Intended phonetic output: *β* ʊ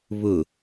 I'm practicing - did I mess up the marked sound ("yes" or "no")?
no